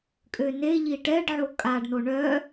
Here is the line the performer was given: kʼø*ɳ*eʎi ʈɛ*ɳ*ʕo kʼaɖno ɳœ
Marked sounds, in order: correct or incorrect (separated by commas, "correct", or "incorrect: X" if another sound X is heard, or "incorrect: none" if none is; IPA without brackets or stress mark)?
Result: incorrect: n, incorrect: ɖ